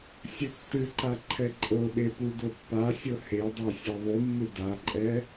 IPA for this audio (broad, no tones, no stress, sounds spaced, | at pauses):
sʲ ɘ tː ɨ ǃ a ǃʰ ɛ ǃʼ ɤ ɓ e p u d o pː a sʲ ɤ h e dˤ ɛ sʲ ɛ ðˤ u mː ɨ d a ǃʼ ɛ